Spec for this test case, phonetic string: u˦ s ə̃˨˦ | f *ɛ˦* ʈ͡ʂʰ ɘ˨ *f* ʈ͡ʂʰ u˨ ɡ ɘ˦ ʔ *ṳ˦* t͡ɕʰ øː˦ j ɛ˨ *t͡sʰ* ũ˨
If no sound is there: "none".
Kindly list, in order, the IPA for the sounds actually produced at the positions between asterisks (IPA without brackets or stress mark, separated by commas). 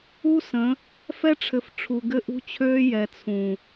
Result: ɛ˦, f, ṳ˦, t͡sʰ